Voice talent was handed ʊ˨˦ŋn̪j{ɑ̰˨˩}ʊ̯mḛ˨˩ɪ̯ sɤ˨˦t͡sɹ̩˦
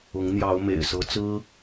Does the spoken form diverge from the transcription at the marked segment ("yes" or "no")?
yes